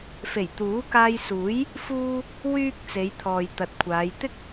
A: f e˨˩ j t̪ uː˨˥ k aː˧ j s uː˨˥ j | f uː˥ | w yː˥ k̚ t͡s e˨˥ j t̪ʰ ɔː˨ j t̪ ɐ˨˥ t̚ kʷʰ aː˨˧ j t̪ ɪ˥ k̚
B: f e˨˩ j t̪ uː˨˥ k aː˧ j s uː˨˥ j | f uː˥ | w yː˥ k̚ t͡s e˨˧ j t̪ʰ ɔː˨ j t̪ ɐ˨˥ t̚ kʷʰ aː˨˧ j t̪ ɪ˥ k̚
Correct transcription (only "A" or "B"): B